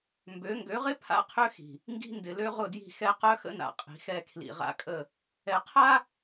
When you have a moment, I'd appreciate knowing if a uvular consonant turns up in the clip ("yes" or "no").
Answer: yes